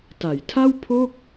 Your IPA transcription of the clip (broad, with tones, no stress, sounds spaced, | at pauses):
t a˩˦ j tʰ a˥˩ w pʰ oː˥˩ k̚